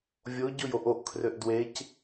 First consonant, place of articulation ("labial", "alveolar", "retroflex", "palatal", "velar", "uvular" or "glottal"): labial